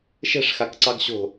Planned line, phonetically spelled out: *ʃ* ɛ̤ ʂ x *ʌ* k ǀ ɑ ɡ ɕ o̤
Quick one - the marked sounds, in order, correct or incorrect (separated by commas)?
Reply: correct, incorrect